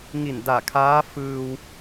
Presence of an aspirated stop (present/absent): present